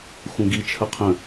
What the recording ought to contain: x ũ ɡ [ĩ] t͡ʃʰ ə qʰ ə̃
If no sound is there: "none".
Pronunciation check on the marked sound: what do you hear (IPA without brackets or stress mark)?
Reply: i